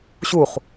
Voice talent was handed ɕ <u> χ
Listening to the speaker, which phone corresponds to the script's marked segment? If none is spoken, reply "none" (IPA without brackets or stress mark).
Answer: u